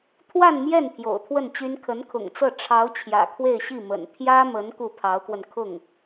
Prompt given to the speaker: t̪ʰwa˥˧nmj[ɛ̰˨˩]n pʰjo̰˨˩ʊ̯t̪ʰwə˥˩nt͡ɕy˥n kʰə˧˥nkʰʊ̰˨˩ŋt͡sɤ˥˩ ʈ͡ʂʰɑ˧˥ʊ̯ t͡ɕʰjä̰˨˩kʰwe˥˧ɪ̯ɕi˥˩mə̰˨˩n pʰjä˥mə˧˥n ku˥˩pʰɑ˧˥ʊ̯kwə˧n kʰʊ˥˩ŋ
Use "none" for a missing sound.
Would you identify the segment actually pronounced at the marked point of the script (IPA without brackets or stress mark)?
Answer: ɛ˥˩